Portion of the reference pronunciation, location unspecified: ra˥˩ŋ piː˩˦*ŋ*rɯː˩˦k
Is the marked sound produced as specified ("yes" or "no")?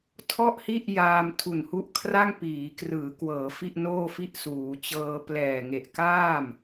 no